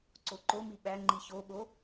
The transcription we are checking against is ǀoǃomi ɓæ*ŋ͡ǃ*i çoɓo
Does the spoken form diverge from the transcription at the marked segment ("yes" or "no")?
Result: no